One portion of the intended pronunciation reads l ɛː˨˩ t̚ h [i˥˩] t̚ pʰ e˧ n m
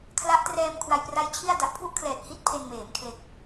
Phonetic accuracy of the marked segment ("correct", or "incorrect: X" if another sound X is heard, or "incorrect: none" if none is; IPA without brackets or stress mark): incorrect: i˦˥